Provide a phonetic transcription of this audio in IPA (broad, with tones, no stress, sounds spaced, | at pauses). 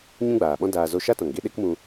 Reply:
ɲ ũ˦ ɡ͡b aː˨ ɓ ɔ̃˦ d aː˧ z o˧ ʃ a˦ t ɔ̃˨ ŋ ɡ e˦ ɗ e˦ k m ũ˧